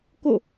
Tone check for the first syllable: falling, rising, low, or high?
falling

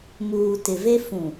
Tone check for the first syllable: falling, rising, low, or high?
low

